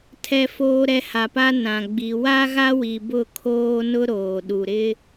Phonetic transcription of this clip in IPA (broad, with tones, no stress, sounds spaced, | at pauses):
tʰ ɛ˨ f oː˨ ɾ ɛ˨ h a˨ p a˦ n ã˨ ɡ͡b i˨ w a˦ ɣ a˦ w i˨ b ʊ˦˨ kʰ oː˦ n ʊ˦ ɾ oː˨ ɗ u˨ ɾ ɪ˦